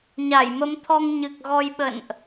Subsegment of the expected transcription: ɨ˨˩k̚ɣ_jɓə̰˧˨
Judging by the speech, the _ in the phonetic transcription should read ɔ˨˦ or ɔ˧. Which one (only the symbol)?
ɔ˧